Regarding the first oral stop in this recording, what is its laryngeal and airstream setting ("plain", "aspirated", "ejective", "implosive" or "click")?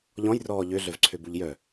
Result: click